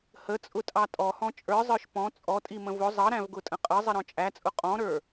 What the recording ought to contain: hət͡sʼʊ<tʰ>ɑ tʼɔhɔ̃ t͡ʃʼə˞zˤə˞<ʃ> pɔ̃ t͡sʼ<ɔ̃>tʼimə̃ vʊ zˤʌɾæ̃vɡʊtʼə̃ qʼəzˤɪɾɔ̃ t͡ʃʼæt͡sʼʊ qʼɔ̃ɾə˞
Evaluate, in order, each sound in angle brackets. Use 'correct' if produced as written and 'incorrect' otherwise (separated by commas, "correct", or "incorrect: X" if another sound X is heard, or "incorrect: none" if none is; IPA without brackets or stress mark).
incorrect: tʼ, correct, incorrect: ɔ